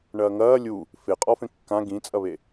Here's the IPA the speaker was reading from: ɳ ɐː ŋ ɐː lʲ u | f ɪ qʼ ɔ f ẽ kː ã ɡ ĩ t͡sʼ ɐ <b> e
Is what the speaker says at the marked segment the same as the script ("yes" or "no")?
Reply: no